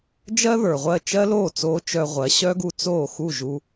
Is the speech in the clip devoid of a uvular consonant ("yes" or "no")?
no